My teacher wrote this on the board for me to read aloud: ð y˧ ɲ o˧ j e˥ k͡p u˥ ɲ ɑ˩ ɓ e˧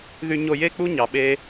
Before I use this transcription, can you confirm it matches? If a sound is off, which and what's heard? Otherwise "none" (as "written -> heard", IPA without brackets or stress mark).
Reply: none